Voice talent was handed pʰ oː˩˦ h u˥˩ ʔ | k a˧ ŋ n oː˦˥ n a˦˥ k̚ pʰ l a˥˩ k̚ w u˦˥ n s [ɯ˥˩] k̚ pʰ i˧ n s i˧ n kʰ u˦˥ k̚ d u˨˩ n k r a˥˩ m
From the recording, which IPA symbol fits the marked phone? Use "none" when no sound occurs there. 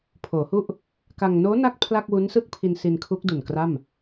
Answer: ɯ˥˩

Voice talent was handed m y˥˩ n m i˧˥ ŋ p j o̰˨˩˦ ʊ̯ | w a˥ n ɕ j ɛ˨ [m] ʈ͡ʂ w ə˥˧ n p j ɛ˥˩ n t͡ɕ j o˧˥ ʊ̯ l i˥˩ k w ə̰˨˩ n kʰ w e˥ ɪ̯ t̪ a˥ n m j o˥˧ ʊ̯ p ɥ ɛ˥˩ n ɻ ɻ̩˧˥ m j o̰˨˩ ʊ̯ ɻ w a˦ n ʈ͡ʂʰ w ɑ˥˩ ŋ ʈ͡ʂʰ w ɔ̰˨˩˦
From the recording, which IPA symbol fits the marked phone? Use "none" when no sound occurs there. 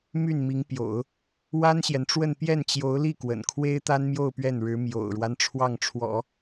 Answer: n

